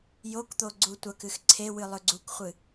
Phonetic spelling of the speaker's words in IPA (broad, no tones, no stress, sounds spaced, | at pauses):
j o k t̪ o ɡ͡ǀ u tʷ ɐ k ɨ x ǀʰ e w ɨ lˠ ɵ ɡ͡ǀ u k χʷ ɨ